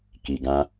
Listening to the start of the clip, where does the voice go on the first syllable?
low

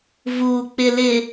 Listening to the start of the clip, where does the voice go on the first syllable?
low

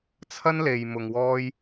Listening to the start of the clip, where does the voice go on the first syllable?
high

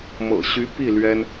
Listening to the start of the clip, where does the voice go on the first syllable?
low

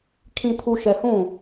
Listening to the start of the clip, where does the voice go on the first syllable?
low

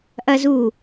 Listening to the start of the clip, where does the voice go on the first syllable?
high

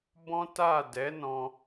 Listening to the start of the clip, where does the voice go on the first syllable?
high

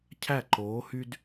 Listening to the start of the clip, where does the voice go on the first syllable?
falling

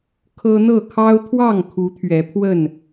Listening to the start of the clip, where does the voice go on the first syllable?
high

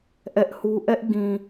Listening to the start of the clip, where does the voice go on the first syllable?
high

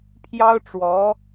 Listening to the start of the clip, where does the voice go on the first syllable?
high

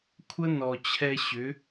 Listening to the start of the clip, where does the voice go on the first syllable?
high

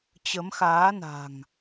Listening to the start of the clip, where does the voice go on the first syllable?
rising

